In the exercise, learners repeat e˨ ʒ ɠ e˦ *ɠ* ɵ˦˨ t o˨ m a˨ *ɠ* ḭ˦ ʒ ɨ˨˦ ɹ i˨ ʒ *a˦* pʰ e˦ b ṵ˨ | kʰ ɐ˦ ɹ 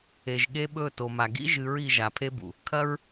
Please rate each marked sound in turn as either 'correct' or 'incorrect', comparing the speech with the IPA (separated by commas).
incorrect, incorrect, incorrect